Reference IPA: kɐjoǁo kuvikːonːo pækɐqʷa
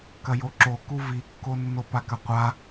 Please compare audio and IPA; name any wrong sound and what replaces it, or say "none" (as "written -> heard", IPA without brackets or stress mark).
æ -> a